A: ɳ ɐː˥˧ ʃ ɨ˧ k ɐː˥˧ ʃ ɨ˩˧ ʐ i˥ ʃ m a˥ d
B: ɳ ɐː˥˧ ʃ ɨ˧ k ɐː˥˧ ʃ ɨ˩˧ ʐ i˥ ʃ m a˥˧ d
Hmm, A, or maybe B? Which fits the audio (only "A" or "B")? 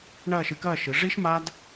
A